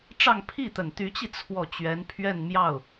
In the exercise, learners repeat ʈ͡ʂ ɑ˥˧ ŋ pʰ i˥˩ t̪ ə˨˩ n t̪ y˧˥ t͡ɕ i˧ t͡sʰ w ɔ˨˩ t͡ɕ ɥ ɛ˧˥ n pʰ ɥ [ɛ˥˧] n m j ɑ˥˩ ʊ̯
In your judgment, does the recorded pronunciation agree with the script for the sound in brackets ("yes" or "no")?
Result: yes